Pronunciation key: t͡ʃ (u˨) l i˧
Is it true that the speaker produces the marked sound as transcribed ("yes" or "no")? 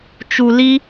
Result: yes